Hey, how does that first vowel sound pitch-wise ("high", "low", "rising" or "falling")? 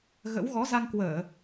rising